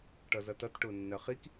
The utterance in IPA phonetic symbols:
ʈʌzʌtʌt ʈʊːnːɜχik

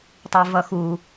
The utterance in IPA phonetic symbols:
tˤivʌxu

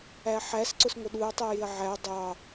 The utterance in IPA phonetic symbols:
æħæs ǀʊsŋʷəɗuɐ̯ tˤijɪɐ̯ʕæ dˤɑ

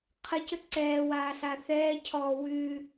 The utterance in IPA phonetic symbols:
qʰəcə ǀɛːwaːɬa θɛːcʰɔː wʉː

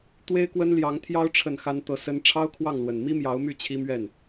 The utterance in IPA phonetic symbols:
t̪we˥ɪ̯kwə˥nljɑ˧˥ŋt̪ʰjɑ˥ʊ̯ ʈ͡ʂʰə˥˩nxa˥nt̪ɤ˥˩sə˥n ʈ͡ʂʰɑ˥ʊ̯kʰwɑ˥˩ŋlwə˨˩n mi˥mjɑ˧˥ʊ̯my˥˩ t͡ɕʰi˥mɥɛ˥˩n

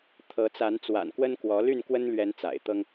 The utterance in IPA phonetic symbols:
t̪ʰɤ˨˦ t͡sa˨˦n t͡swa̰˨˩nkwə˦nkwɔ˨˦ ly˥˨nkwə˦nlɥɛ˨˦n t͡sa̰˨˩ɪ̯t̪ɤ˦ŋ

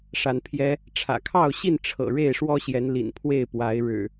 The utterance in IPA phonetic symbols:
ʂa˨˦npʰjɛ˦ | ʈ͡ʂʰä̰˨˩kʰɑ˥˨ʊ̯ɕi˥˨n ʈ͡ʂʰɤ̰˨˩ ɻe˥˨ɪ̯ʂwɔ˦ɕjɛ˨˦n lḭ˨˩n pʰwe˥˨ɪ̯pwa˨˦ɪ̯ ɻɻ̩˨˩

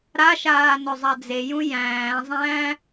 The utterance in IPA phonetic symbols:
ɾaʃaː nɵzˤad͡zejũ jæ̃ːzˤæ̃ː

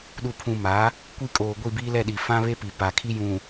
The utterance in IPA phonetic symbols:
ɗu˨pʰũ˨ma˨˦ | kʷi˦kʼoː˨ɡʷi˦˨ biː˦lɛ˦˨ɗi˨ fã˦βe˦pi˨ pa˨kʰi˦jũ˨

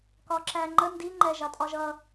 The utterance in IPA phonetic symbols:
kɒǁæŋ͡ǃə ndi ŋ͡ǃɛʒɑtʼɒʒʌ

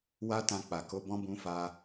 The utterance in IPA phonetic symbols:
wa˧ tã˧k͡pa˨ko˧ bɔ̃˦bũ˧fa˧

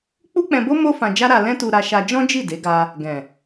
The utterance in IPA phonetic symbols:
k͡pu˦k͡pɛ̃˧bo˦ mo˦ fã˧d͡ʒa˦ɾa˧ lɛ̃˦tu˧ɾa˧ʃa˧ d͡ʒɔ̃˦d͡ʒi˦˨ de˨˦ɡa˧ | ɡɛ̃˨

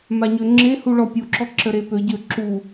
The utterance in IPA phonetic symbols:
maɲøŋ͡ǁehu ɭɔpʲuǁɔ ǁəɾepøɟø ǁu

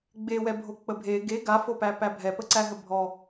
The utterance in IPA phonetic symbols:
ɡ͡bewɛbʱo k͡pəbʱe ɡe ɡafopæ pæbʱɛpəǀæ ɦəbʱɔ

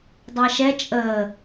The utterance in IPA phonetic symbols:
dˤɑʃɛ t͡ʃʼəː

